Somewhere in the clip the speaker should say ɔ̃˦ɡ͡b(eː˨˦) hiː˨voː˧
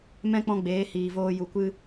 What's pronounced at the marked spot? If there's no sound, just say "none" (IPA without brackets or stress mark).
eː˨˦